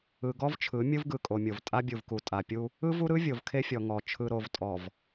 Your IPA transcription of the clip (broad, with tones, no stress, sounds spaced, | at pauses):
ɯ˨ ɡ ɔ˦ v t͡ʃʰ ɯ˨˦ mʲ ɯ˦ v ɡ ɯ˨ kʼ o˨ mʲ o˨ v tʼ a˦ bʲ u˨ v k u˨ tʼ a˨ pʲ u˦ | ɯ˦ v u˦ ɾ ɯ˦ vʲ o˨ v kʰ e˦ fʲ ɔ˨ ŋ ɔ˨ t͡ʃʰ ɯ˨ ɾ o˨ v tʼ ɔ˨ v